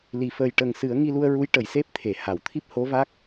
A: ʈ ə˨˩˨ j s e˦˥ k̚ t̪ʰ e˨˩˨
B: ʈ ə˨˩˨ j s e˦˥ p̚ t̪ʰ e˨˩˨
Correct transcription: B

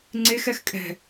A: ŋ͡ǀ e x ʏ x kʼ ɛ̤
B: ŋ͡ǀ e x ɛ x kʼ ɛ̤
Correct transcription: B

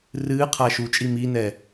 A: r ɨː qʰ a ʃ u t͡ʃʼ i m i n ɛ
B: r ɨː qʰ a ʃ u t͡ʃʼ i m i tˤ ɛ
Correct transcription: A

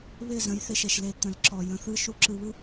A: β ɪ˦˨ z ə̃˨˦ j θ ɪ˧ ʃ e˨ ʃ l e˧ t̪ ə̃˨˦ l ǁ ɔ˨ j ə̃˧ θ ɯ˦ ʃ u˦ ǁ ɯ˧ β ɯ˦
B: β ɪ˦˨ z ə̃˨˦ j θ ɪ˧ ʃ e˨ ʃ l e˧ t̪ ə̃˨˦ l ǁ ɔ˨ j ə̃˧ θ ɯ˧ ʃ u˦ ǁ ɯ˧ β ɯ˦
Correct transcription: A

